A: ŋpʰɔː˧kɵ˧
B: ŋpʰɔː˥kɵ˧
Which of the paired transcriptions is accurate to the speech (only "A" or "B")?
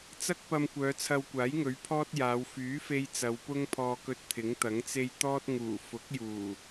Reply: A